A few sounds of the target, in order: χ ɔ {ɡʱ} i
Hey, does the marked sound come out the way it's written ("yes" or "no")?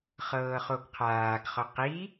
no